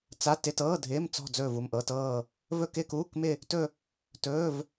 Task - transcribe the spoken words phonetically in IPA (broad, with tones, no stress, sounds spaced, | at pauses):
t͡s a˧˥˧ t ɪ˧˥˧ t ɤː˧˥˧ dʱ ɪː˧˥˧ m t͡s ɔ̤˥˧ d͡z ɵː˥˧ v u˥˧ m ʔ ɤ˧˥˧ t ɤː˥˧ | v ɵ˥˧ k ɪː˥˧ k uː˧˥˧ k m ɪ˥˧ | t ɵ˥˧ | t ɵː˧˥˧ v